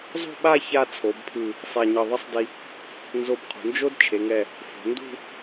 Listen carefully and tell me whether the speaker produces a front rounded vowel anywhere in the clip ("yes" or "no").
no